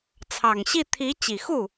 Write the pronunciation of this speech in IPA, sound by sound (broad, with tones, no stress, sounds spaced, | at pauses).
t͡sʰ ɑ˨˩ ŋ ɕ i˥˩ t̪ʰ i˧˥ t͡ɕ i˨˩ x u˥˩